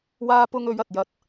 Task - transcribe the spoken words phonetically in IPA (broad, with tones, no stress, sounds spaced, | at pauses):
w aː˧ p ʊ˧ ŋ ɵ˨˧ ɥ ɐ˨ t̚ j ɐ˨˥ t̚